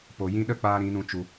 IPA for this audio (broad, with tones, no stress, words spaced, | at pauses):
po˨ jĩ˧ ɗə˦˨k͡paː˧ ɾĩ˨˦nũ˧ t͡ʃu˧